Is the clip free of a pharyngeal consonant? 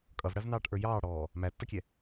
yes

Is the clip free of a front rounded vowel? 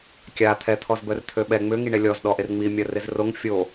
no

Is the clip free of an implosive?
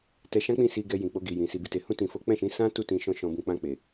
yes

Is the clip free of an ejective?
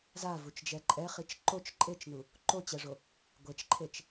no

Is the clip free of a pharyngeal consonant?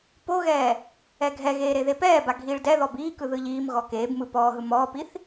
yes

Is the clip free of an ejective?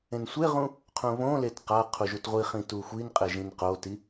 no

